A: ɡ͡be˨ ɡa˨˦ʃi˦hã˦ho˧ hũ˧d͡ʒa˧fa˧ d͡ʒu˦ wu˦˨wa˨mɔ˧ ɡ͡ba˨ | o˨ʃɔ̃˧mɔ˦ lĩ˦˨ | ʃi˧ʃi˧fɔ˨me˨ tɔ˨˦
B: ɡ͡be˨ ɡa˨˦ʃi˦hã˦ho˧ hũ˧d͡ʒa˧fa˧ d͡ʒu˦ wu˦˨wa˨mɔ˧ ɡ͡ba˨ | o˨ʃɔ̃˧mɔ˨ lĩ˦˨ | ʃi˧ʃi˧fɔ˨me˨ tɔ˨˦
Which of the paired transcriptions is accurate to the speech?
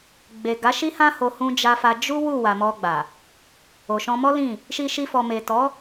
A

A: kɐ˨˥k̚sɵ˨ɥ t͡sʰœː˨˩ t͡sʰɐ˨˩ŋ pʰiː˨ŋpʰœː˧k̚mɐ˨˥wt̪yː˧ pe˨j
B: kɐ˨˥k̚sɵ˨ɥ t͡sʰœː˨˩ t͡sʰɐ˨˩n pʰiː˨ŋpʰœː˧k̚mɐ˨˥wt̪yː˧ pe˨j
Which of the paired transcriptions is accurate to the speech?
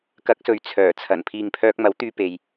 B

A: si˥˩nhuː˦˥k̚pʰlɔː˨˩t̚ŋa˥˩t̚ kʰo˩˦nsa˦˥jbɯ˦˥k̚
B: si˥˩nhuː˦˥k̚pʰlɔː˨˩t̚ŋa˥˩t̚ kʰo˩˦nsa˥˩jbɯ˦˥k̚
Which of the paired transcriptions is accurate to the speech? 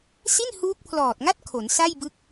B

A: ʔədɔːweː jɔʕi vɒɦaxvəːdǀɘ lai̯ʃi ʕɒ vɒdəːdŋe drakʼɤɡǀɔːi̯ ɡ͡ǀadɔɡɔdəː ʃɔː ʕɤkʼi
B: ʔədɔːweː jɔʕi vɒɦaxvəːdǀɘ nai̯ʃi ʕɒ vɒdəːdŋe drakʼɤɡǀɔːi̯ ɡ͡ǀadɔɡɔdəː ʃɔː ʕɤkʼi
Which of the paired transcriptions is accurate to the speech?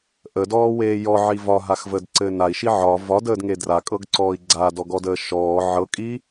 B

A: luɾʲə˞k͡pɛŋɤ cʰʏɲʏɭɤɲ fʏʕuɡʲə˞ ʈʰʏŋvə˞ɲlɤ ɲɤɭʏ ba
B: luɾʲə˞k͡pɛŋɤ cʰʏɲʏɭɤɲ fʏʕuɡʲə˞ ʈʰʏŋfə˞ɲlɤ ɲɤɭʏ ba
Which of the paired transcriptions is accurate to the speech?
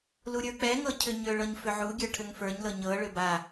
B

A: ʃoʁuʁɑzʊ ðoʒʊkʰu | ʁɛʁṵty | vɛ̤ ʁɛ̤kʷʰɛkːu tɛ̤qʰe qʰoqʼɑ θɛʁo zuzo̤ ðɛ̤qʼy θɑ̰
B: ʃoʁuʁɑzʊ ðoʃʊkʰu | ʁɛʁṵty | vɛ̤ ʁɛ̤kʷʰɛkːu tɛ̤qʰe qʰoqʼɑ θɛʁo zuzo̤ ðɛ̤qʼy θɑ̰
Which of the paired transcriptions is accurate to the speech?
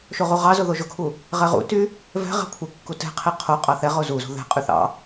A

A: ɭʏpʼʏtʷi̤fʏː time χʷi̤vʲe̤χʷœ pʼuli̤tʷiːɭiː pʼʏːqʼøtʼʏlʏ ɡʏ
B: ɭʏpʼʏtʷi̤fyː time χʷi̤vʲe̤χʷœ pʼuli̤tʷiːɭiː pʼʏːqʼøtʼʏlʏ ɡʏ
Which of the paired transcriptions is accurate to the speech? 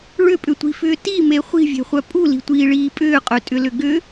A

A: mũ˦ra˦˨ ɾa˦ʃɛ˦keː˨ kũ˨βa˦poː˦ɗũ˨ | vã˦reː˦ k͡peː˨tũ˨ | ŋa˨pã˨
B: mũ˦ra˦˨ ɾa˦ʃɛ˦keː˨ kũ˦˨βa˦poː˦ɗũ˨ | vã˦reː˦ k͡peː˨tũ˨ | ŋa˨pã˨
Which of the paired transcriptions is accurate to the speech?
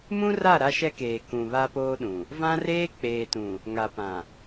A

